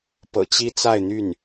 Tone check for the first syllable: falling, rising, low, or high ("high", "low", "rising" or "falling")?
low